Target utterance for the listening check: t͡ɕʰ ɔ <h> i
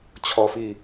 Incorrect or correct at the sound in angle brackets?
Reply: incorrect: f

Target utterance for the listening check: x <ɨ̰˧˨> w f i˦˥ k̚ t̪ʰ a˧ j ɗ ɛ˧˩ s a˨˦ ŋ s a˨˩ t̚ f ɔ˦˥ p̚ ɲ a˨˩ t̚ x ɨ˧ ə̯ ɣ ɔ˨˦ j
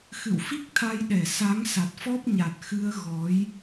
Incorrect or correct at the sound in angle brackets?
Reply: correct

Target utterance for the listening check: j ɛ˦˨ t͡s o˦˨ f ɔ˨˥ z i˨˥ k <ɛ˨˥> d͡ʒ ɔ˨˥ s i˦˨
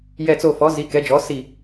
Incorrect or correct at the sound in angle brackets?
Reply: correct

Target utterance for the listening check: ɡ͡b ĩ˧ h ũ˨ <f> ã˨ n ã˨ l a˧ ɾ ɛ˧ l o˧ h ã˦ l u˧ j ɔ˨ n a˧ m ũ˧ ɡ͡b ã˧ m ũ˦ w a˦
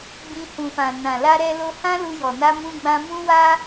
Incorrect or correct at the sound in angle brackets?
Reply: correct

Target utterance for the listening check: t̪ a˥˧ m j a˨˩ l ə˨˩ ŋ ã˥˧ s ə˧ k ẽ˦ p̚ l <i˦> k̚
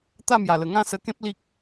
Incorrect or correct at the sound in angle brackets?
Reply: correct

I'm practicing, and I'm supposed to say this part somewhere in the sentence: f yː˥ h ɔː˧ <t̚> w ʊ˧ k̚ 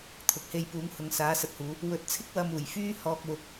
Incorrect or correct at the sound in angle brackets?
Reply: incorrect: k̚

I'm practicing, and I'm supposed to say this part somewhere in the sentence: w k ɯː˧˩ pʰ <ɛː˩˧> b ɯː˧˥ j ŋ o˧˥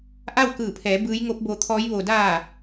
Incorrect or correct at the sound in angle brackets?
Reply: correct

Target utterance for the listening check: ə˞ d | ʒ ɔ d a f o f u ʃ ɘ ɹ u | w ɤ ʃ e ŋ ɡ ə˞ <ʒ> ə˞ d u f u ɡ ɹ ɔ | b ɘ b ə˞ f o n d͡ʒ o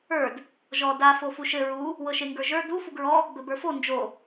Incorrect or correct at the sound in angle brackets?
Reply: correct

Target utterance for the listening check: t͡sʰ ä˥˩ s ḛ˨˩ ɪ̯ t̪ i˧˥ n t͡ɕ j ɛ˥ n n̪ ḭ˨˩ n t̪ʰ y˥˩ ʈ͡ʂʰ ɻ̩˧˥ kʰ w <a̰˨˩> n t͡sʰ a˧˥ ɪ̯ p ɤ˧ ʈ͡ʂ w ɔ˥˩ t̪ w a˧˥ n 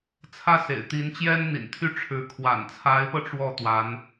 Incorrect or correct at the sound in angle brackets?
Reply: correct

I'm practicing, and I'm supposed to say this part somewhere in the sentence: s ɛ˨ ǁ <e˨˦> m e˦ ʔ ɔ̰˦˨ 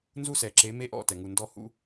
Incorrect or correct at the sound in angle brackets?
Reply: correct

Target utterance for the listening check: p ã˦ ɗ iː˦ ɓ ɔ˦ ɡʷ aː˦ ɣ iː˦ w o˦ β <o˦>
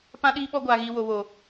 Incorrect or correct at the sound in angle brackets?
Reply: correct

